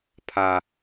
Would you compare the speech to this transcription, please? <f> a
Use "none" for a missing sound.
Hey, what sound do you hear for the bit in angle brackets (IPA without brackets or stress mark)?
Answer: pʰ